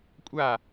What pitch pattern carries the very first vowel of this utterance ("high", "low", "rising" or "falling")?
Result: falling